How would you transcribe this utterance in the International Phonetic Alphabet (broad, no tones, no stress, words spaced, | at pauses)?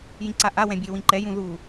jĩǀaʔawɛ̃ bʲewĩǃɛjũ ðu